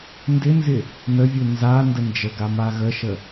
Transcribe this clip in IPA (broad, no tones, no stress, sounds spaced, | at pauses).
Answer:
n d ɪ n z ɪ | n ə vʲ u n z a n d ə n d͡ʒ ə ɡ a m a ɣ ə ʃ ə